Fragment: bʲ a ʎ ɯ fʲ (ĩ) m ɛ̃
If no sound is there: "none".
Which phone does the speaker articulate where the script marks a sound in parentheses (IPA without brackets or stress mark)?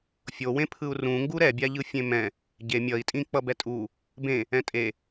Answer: ẽ